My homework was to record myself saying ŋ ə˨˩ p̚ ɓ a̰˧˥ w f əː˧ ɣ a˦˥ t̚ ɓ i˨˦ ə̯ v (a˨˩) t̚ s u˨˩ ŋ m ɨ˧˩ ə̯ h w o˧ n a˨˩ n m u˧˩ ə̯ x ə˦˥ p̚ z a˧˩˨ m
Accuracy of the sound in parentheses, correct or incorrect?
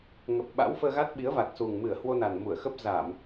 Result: correct